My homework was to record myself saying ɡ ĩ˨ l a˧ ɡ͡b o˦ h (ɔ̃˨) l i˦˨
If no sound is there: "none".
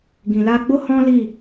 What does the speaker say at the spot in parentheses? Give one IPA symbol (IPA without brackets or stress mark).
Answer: ɔ̃˦